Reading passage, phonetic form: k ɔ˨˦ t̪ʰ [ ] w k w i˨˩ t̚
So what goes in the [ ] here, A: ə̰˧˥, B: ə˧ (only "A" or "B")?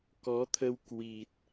B